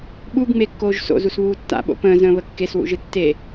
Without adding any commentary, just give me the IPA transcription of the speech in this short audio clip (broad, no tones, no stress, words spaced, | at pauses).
ɓuɡŋ͡mekːoːʒ so̰zusβuː tːa̰ɓo̰ pə̃ːzə̃ːβə kːeswṵʒɨ tːe